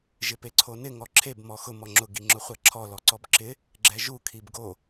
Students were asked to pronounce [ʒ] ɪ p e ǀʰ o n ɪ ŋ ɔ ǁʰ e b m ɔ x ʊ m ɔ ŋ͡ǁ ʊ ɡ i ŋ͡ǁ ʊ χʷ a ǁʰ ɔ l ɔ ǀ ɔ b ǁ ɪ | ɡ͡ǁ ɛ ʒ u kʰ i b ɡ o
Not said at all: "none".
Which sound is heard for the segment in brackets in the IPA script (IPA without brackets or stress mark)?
ʒ